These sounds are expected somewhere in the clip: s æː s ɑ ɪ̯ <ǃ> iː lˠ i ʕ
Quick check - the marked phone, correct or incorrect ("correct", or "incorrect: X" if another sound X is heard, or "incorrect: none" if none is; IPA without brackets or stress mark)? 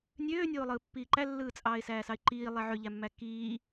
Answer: correct